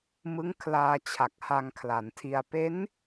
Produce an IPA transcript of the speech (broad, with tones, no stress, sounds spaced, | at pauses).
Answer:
m ɯ˦˥ ŋ kʰ l aː˧ t͡ɕʰ a˨˩ k̚ h a˧ ŋ kʰ l a˩˦ n tʰ i˧ a̯ p e˦˥ n